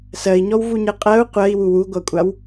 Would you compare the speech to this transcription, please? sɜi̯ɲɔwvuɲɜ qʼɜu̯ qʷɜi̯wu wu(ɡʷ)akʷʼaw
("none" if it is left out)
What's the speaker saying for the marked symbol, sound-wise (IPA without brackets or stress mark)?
ɡʷ